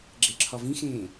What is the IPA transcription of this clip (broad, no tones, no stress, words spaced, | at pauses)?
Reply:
ɡ͡ǁeǁʰɒvĩxẽː